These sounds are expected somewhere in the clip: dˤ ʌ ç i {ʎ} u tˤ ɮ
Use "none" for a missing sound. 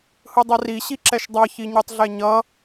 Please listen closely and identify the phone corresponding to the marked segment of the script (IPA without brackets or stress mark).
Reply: ɲ